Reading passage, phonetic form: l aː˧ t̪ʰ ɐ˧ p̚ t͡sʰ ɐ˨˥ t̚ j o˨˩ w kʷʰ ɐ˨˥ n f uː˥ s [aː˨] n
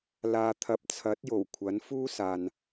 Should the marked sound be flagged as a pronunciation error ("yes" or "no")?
no